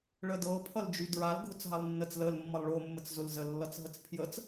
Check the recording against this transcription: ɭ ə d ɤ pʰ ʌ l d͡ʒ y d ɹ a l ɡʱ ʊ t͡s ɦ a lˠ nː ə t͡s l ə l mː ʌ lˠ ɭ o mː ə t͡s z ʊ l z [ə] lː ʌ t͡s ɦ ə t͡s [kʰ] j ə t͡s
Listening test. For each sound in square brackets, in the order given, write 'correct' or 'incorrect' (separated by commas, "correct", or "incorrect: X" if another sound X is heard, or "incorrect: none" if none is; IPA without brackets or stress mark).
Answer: correct, incorrect: pʰ